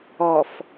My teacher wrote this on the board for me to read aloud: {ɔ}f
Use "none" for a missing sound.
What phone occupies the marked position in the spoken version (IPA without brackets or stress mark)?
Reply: ɔ